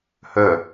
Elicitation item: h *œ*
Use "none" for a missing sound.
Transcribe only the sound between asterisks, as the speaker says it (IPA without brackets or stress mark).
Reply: œ